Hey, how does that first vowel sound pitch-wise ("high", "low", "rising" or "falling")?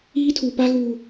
high